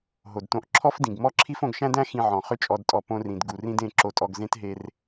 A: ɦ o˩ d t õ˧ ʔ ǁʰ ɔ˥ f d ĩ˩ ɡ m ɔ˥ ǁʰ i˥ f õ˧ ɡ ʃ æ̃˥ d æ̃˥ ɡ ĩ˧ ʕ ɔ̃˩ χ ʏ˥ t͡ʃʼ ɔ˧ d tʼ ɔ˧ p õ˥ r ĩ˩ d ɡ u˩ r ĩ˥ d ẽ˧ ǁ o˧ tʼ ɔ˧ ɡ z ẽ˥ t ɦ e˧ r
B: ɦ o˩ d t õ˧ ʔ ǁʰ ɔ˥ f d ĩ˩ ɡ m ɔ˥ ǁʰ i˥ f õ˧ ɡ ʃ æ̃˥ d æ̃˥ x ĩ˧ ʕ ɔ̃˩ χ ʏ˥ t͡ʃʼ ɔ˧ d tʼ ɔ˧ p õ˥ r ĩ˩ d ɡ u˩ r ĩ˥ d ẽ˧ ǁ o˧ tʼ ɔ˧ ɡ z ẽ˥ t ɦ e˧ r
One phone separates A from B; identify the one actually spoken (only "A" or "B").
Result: B